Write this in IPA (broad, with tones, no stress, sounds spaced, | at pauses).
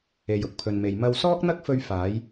e˨ j ʊ˨˥ k̚ pʰ ɵ˨ n m e˨ j m ɐ˧ w s ɔː˥ k̚ n̪ ɐ˥ k̚ f ɵ˧ ɥ f aː˨˧ j